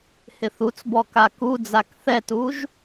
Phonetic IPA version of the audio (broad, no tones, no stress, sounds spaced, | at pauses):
h ɪ θ u t͡s b ɔ k a k u d͡z a k θ ɛ t u ʒ